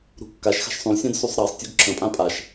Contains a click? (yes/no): yes